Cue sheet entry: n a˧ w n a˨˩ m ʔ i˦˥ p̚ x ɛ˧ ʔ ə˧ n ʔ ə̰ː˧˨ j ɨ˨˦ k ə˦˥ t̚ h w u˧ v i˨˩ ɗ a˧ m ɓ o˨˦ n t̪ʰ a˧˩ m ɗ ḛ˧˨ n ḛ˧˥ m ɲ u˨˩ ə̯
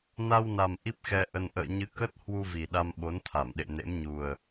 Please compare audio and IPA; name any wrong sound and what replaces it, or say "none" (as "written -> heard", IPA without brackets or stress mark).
j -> ɲ